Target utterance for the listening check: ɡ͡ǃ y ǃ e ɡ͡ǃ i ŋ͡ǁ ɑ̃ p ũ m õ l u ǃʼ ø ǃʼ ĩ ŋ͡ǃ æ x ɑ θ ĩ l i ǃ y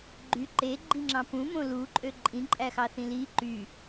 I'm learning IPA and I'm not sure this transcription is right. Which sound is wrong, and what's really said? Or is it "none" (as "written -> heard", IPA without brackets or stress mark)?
ŋ͡ǃ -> ǃʼ